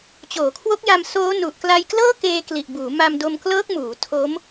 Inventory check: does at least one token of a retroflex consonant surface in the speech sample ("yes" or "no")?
no